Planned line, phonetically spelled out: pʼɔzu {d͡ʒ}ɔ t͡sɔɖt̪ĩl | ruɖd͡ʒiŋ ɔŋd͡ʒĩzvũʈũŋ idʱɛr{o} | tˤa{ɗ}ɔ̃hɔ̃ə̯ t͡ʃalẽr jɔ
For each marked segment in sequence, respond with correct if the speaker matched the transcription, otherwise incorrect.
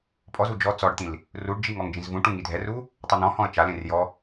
correct, incorrect: u, incorrect: n̪

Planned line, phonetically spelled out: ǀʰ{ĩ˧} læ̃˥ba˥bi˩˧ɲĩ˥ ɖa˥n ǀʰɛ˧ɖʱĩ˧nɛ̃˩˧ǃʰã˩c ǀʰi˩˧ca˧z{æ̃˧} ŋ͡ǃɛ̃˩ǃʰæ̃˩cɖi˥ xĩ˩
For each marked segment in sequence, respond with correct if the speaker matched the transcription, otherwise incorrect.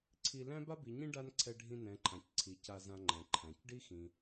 incorrect: i˧, incorrect: ã˧

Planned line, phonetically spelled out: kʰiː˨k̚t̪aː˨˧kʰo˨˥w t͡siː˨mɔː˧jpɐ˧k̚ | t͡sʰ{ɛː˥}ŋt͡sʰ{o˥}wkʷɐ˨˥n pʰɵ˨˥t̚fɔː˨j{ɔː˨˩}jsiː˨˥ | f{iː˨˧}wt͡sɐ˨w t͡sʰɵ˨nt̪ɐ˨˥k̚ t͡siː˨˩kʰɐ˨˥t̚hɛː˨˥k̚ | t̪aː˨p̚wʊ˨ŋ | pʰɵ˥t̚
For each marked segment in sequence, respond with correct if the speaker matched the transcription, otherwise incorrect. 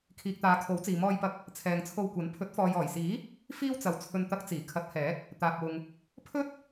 incorrect: ɛː˨, incorrect: o˧, correct, incorrect: iː˥

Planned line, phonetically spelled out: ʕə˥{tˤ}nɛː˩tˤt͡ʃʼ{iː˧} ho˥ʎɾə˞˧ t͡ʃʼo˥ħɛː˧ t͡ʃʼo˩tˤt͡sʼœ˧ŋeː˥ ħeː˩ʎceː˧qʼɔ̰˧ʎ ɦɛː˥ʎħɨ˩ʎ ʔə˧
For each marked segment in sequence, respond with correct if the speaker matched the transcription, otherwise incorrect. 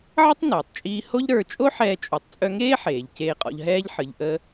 correct, correct

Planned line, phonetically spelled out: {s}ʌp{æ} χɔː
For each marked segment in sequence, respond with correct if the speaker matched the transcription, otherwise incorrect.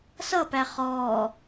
correct, correct

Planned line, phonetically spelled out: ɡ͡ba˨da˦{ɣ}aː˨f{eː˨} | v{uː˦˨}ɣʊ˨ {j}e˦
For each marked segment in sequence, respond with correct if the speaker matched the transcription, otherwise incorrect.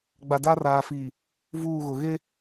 incorrect: r, incorrect: iː˨, correct, incorrect: ɣ

